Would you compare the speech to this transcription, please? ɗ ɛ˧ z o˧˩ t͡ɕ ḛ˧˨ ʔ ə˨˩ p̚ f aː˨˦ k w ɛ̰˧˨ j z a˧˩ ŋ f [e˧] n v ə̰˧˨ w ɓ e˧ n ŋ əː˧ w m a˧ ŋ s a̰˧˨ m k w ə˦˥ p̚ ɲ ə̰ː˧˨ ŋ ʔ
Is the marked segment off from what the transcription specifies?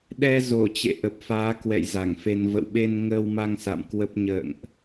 no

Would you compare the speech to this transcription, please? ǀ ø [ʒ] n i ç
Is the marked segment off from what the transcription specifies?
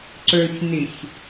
yes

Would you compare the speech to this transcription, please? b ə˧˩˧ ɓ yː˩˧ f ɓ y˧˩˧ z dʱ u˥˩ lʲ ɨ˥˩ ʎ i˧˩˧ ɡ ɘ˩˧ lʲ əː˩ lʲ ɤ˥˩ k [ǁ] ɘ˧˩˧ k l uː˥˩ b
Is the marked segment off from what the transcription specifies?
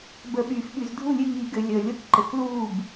yes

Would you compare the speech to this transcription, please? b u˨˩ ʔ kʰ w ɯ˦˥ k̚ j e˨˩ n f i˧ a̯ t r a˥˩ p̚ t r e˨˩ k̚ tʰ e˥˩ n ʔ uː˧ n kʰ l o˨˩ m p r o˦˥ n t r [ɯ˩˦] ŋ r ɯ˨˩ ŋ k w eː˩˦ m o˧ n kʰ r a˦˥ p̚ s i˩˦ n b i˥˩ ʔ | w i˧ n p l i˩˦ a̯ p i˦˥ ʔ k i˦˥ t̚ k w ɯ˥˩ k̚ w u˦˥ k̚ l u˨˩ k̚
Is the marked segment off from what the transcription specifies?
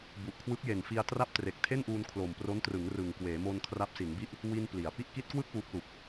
no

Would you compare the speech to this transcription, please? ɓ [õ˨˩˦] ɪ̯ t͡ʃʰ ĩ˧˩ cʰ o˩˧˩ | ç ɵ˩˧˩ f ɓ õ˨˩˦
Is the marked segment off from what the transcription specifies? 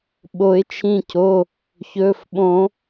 yes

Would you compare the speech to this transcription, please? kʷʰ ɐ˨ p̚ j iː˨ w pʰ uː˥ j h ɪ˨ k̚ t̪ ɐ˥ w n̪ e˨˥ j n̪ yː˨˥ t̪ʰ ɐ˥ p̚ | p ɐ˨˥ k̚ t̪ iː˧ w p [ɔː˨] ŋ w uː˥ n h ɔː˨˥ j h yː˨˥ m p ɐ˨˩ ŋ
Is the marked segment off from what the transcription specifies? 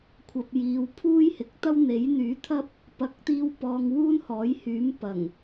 no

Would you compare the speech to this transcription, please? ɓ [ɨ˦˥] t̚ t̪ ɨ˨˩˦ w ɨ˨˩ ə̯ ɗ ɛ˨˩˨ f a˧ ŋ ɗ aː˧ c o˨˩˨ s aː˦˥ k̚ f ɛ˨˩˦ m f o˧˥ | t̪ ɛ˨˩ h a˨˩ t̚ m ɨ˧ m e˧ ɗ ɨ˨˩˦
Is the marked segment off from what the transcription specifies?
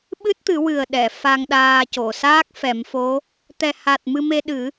no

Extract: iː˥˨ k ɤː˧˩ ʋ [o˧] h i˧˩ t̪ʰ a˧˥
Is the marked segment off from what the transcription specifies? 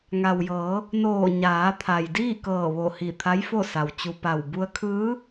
yes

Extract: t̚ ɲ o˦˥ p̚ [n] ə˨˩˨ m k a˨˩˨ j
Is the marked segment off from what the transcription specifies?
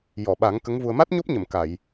yes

